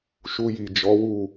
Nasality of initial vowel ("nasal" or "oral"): oral